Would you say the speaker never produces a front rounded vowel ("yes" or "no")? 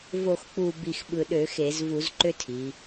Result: no